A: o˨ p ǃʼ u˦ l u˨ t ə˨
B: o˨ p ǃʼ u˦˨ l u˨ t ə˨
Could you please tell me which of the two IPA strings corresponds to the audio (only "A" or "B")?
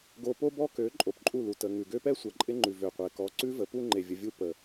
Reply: B